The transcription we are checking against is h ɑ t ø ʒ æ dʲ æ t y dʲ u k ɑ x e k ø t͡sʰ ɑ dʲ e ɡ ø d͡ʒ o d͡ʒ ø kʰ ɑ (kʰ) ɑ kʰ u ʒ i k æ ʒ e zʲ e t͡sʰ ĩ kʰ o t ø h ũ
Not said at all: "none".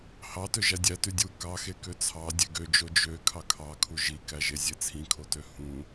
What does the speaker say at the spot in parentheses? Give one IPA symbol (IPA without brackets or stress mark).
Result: kʰ